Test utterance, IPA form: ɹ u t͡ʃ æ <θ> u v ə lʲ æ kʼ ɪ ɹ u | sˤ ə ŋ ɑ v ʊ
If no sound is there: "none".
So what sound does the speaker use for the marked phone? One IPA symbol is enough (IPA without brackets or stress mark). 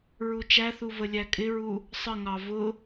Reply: θ